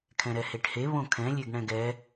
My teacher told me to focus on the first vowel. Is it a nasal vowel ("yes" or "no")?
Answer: yes